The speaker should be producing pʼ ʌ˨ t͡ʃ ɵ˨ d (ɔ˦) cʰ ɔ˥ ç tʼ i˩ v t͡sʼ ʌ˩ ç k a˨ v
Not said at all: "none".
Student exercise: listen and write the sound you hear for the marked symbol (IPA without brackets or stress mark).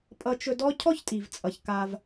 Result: ɔ˦